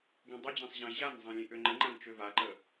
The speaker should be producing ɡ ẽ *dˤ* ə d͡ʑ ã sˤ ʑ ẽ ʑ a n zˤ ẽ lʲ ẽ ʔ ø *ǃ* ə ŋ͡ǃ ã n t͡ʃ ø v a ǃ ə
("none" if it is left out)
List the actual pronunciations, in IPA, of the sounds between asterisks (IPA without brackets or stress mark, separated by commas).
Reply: dˤ, ŋ͡ǃ